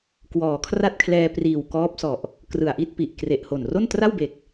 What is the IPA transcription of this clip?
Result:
k w ɔː˩˦ kʰ r a˥˩ t̚ kʰ l ɛː˧ p r iː˨˩ w k ɔː˦˥ p̚ s ɔ˨˩ ʔ | k r ɯ˨˩ a̯ ʔ i˥˩ t̚ p i˨˩ ʔ k r e˨˩ ʔ h o˨˩ n r o˥˩ n t r a˥˩ w b e˨˩ k̚

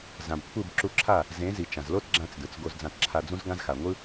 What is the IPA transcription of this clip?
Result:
z ã˨ b kʷʰ ɯ˦˨ b ǁ u˧ ǁʰ a˦˨ | z ẽ˨˦ z i˨ t͡ʃ ã˨ z l o˦ t ɡ͡ǁ ã˧ t͡s d ɯ˨ t͡s ɡ o˧ z d͡z ã˧ t ǁʰ a˧ d͡z ũ˦ z ɡ ã˦ z x a˨ ŋʷ ɯ˦

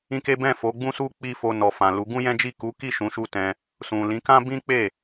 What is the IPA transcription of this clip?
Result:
ĩ˦ k e˦ b ɛ̃˦˨ f o˨˦ ɡ͡b ũ˦ s u˦ k͡p i˦ f o˧ n ɔ˨ f ã˨ l u˨˦ ɡ ũ˦ j ɛ̃˦ d͡ʒ i˦˨ k u˨˦ k i˦˨ ʃ ũ˨˦ ʃ u˧ t ɛ̃˧ | s ũ˨ l ĩ˨˦ k ã˦ b ĩ˦ k͡p e˦˨

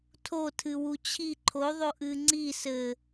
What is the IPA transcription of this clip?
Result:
tʰ o tʰ ɨ w u t͡ɕʰ i ǃʰ o ðˤ o ʔ ɨ ŋ͡ǀ i s ɘ

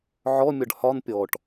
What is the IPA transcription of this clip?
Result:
ʕ ɔ mʲ ɒ ɖ h ɒ n pʲ ɔ ʈ

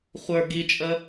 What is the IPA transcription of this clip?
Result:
χʷ ə˞ ɡ i t͡ʃʼ ə

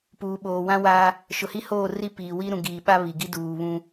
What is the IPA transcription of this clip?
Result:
p uː˨ ɓ oː˨ w ã˦ w a˦ | ʃ ʊ˨ h i˦ h oː˦˨ r i˦ p iː˨ w i˦ ɾ ũ˨ ɡ iː˨ ɓ a˦ β i˨ ɡ i˦ d uː˨ β ũ˦

